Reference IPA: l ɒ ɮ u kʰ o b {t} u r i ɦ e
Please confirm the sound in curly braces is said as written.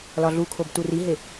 yes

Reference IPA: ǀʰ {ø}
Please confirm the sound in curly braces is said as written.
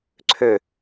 yes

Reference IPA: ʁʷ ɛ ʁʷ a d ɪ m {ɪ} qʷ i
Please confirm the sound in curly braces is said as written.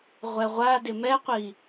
no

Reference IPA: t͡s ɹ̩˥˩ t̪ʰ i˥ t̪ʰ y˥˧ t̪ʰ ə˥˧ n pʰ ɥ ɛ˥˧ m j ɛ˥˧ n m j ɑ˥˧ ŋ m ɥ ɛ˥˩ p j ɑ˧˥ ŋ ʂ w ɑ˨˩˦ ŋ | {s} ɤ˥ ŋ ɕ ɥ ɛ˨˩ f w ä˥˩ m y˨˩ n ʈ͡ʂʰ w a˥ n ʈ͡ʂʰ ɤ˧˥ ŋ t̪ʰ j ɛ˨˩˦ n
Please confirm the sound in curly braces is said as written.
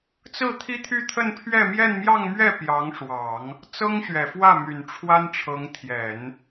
no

